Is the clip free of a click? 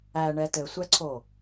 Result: no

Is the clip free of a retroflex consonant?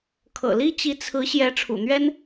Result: no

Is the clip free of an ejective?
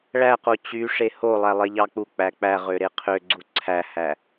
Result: yes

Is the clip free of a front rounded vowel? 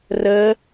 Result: yes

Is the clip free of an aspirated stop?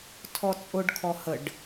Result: no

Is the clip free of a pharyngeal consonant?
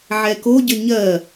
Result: no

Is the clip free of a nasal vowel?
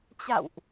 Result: yes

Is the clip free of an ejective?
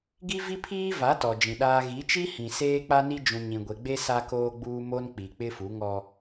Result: yes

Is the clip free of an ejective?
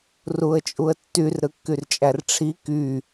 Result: no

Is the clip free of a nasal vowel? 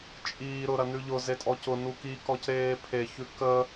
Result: yes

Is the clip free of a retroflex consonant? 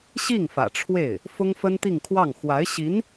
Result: no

